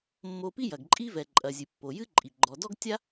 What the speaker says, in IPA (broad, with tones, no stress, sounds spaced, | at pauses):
mː o˧ p i˥ j ɐ˩ ɡ ǃʼ i˥ v ɛ˩ ǃʼ ɐ˩ zʲ ɨ˩ pː o˩ j ɨ˥ ǃʼ i˩ ɡ͡ǃ ɔ˩ d ɔ˥ ɡ tʲ a˥